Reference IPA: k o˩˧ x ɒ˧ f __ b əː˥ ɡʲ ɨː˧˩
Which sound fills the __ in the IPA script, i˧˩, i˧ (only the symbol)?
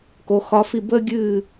i˧˩